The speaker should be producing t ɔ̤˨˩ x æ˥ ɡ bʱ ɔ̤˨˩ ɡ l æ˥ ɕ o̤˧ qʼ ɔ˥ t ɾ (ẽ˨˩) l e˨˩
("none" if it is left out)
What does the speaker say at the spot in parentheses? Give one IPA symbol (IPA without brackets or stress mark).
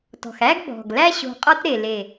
e˨˩